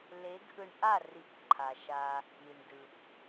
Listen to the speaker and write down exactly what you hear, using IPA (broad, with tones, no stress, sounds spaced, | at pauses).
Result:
l e˨˦ ɡ ʔ ɯ˧ ɳ ʔ a˦˨ r i˨˦ p ǃʰ a˨ ʃ a˧ | i˨ ɳ d ɯ˨ p